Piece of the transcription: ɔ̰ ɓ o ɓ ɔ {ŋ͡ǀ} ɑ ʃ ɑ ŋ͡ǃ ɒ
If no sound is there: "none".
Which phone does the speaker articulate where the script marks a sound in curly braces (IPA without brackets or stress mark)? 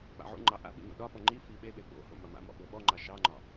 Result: ŋ͡ǃ